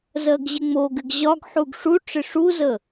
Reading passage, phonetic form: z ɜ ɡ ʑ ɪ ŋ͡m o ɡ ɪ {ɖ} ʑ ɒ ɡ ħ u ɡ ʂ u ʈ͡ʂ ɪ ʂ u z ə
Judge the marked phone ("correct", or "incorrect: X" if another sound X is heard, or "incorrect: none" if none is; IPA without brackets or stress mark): incorrect: ɡ